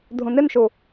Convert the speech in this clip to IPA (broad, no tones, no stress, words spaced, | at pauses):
dʱũnɪnʃu